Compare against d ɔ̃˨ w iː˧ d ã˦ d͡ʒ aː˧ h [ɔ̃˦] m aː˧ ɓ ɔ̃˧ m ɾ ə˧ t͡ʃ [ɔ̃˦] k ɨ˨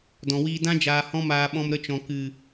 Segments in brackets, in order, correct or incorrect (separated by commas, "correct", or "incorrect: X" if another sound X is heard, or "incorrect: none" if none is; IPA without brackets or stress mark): correct, incorrect: ɔ̃˨